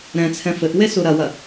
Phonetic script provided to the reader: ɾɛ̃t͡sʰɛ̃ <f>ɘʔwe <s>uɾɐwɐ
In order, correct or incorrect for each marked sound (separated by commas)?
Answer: correct, correct